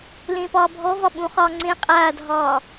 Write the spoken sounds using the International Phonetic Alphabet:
l ẽ p ɒː bʱ ɔ v ɒ ɓ ũ χ ɒː ŋ͡ǀ ẽ qʼ aː dʱ ɒː

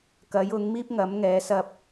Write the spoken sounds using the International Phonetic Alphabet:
k ɐ˨˥ j ʊ˨˥ ŋ m iː˥ p̚ ŋ ɐ˨˥ m ŋ ɛː˨˥ s ɐ˧ p̚

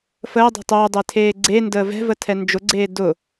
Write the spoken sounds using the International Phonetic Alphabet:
f əː dˤ ɛ̤ tˤ ʊː dˤ e tʰ eː ɡ͡ǀ e n d əː v ɛ̤ v ə tʰ ɛ n d͡ʒ ʊ ɡ͡ǀ eː d ʊ

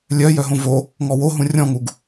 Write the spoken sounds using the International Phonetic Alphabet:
lʲ œ j œ ɦ õ v o | ŋ ɔ w o ɦ ũ rʲ ɔ̃ ŋ u ɡ

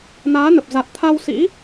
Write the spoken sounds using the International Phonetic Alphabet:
n aː˨˦ n ə˨˩ p̚ z a˨˩ t̚ t̪ʰ a˧ w s ḭ˧˥

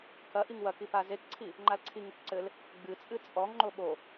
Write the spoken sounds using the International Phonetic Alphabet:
k ɐ ʔ i ŋ w ɐ k i p a z e k ǀʰ i | ŋ͡ǃ a l ǀʰ i ŋ ɨ k ǀ ɘ l | ɡ͡b ɨ t͡sʼ ɨ t͡sʼ ɔ ŋ ŋ͡ǃ o ɓ o

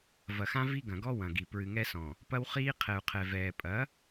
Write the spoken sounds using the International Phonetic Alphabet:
v ɐ˨ x ã˦ v i˦ ɡ ɐ̃˨ ɡ ɔ˦ w ɐ̃˨ ɡ i˨ p ɹ ɨ˨ ŋ ɛ˦ s ɔ̃˨ | p ɐ˦ w χ iː˦ qʰ ɛ˨ u̯ qʰ ɛ˨ v ɛː˨ pʼ ɐ˨˦

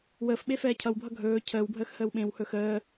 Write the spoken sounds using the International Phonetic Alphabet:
w əː f ɓ e f ɛː cʰ ʌ w bʱ ʌ ɡʱ ɵː cʰ əː w bʱ əː x h əː w ɓ ẽ w h ɵ x əː

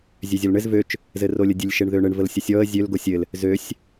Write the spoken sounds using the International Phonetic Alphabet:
zʲ ø zʲ ɔ l ɳ ɘ z v ø t͡ʃ | z ɘ r o lʲ ə dʲ ɘ lʲ ʃ e ɳ ð ø ɳ ɘ ɳ v ə l sʲ ə sʲ ɔ ə̯ zʲ ø l ɡ o sʲ ɘ l | z ø sʲ

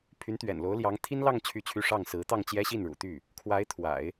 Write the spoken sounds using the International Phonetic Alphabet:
pʰ y˧˥ n t̪ ɥ ɛ̰˨˩ n l o˧˥ ʊ̯ l j ɑ˧˥ ŋ t̪ʰ i˥ n l ɑ˥˧ ŋ t͡ɕʰ y˥˧ t͡ɕʰ y˥˧ ʂ ɑ˥˩ ŋ s ɹ̩˧˥ t̪ ɑ˥˩ ŋ t͡ɕ j ɛ˥ ɕ i˥˩ n ɻ ṵ˨˩ t̪ y˥˩ | kʰ w a˧˥ ɪ̯ t̪ʰ w a̰˨˩˦ ɪ̯

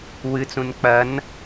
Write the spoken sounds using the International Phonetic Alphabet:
w ɨ t͡s ũ n k͡p ɐ n

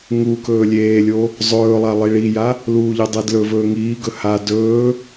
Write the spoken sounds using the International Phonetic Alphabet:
ŋ u k ɵː lʲ eː lʲ o | zˤ ɵː lˠ a lˠ i ɭ i j a | l uː ʎ e dˤ e d l ɵ v ɵː ŋ iː ɡ ɵ h a d ɵː

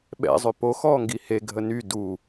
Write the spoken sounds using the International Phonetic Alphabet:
ɓ ɛ̰ zˤ ø p o x ɔː ŋ ɡ i h e ɡʱ ə n y d u

